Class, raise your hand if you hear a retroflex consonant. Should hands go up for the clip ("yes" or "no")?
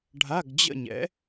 yes